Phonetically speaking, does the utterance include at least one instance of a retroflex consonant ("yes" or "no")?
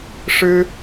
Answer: yes